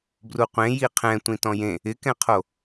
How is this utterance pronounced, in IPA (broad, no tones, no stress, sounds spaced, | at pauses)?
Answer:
b r u qʷ ẽ j i qʰ ɛ̃ tʷ ĩ t ɔ̃ j ẽ | ɪ k ɛ̃ qʰ o